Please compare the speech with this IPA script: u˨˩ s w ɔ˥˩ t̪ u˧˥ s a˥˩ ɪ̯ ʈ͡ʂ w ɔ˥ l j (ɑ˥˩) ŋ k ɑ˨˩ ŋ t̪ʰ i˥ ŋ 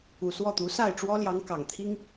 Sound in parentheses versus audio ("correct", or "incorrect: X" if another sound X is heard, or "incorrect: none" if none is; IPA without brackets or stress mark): incorrect: ɑ˧˥